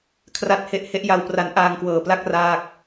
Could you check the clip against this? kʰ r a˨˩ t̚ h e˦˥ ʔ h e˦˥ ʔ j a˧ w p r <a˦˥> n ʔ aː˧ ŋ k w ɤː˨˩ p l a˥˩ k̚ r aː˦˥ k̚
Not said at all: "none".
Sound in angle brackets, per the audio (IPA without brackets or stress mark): a˦˥